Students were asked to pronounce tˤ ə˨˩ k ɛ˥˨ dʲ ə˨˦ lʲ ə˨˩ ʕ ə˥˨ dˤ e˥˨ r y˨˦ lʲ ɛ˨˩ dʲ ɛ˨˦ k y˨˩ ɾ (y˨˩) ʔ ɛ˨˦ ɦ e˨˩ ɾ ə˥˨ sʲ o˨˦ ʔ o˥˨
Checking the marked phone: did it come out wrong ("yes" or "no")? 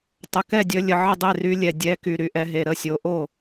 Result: no